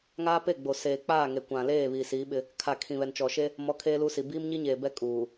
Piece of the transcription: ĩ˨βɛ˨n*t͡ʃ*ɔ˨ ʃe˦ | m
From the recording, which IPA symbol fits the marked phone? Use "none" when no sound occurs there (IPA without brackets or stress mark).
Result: t͡ʃ